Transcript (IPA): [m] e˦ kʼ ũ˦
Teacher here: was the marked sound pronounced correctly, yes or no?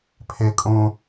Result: no